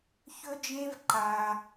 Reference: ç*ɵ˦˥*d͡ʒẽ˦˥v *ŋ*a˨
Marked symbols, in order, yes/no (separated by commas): yes, no